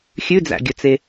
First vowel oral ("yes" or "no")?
yes